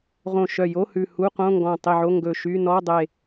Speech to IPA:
ʁ õ˧˩ ʃ œ˧˩ j o˧˥˧ h ʉ˧˩ h u˧˥˧ q õ˧˥˧ ŋ ɡ ɔ̃˧˩ tˤ i˧˩ ʕ o˧˥˧ ŋ ɡ ɵ˧˩ ʃ y˧˥˧ n ɔ˧˥˧ dˤ e˧˩

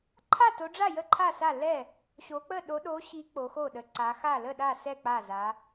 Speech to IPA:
ǃʰ a˥˩ t o˨˦ ɖ͡ʐ a˥˩ j ə˥˩ ǃʰ a˥˩ s a˥˩ l ɛ˥˩ | ɕ o˨˦ k͡p ə˥˩ ɗ o˨˦ ɗ o˨˦ ɕ i˨˦ k͡p o˨˦ x o˥˩ ɗ ə˨˦ ǀ a˨˦ x a˥˩ l ə˥˩ ɗ a˥˩ s ɛ˥˩ k͡p a˥˩ z a˨˦

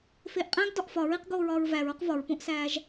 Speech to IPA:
f eː ʔ qʼ æ̃ ɡ d ɒ ʔ f ɒ ɹ i q ɡ oː ɹ ɒː ɹ v æ ɹ o q v ɒ ɹ p õ ʔ s æː ʒ

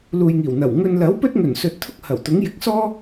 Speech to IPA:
l uː˨ j ŋ iː˨˩ w n̪ ɐ˨˩ w ŋ ɵ˨ n l ɐ˨˥ w p ɵ˥ t̚ ŋ ɵ˨˩ n s ɵ˨ t̚ t̪ʰ ʊ˥ k̚ h ɐ˨˩ w t̪ ʊ˨˥ ŋ j ɪ˨ k̚ s ɔː˥

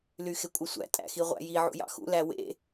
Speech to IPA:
l y x e kʷʼ ɯ sʷ æ̰ tʼ æ̰ x i ʁʷ æ̰ j i ʕ ṵ j ɑ̰ x ṵ l æ w ḛ

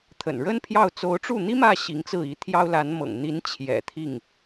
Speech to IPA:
t̪ʰ ə̰˨˩ n ɻ ə˥ n pʰ j ɑ˥˩ ʊ̯ t͡s o˧˥ ʊ̯ ʈ͡ʂ u˥˩ n̪ i˥ m ä˥˩ ɕ i˧˥ ŋ t͡s ɹ̩˥˩ i˧˥ t̪ʰ j ɑ˥ ʊ̯ l a˧˥ n m ɤ̰˨˩ ŋ n̪ i˧˥ n t͡ɕʰ j ɛ̰˨˩ t̪ʰ i˥˩ ŋ

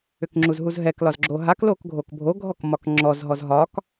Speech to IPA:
ʏ k ŋ͡ǁ u z ɦ u z ɦ ɛ k l ɒ z ɡ͡ǁ o ɦ a k l o k ɡʱ o k bʱ o ɡʱ ɔ k m ɒ k ŋ͡ǁ ɔ z ɦ ɔ z ɦ ɒ k

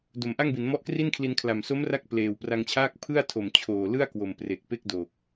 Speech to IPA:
d o˩˦ m ʔ a˥˩ ŋ b i˩˦ n m ɔ˦˥ ʔ k r i˥˩ n kʰ l i˧ n kʰ l a˨˩ m s o˦˥ m r a˦˥ k̚ p l eː˨˩ w p r a˧ ŋ t͡ɕʰ aː˥˩ k̚ pʰ ɯ˥˩ a̯ tʰ o˨˩ m t͡ɕʰ oː˨˩ l ɯ˥˩ a̯ k w o˨˩ m p r e˨˩ k̚ p e˥˩ k̚ d oː˨˩ k̚

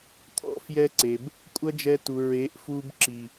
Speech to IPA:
t̪ʰ ɔ̰˦ f j ɛ˦ ǀ e˨ b | kʷʼ ɐ˦ d͡ʒ ɛ˧ t u˨ ɹ e˨˦ ʔ f u˧ b ǁ i˨

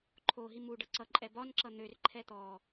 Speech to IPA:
ǃʰ o ɦ i m u ɖ ʌ ǀ ʌ ǃʼ ɛ b ɒ n ǁ ʌ n̪ ø r ǃʰ ɛ t̪ ɔ

